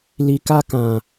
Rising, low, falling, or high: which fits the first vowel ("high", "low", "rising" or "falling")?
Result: low